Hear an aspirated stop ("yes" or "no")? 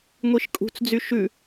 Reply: no